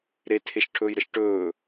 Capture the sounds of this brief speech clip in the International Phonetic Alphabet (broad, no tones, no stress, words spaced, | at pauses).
ɾetʰeʃʈʰɵːjɾəʃ ʈɵː